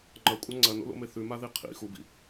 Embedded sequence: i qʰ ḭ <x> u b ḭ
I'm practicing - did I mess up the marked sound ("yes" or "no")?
no